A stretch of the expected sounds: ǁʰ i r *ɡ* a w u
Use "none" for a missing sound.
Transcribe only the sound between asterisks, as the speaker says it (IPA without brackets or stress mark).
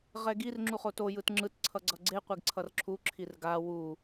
ɡ